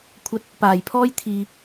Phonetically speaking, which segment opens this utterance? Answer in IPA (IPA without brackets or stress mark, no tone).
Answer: kʷʰ